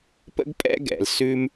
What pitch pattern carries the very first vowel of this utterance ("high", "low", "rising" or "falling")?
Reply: high